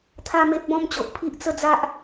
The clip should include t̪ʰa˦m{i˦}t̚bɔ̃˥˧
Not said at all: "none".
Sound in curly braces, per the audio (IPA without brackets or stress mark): e˦